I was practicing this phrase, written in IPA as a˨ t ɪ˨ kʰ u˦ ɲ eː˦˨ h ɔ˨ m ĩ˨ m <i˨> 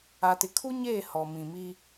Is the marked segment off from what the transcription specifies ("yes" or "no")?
yes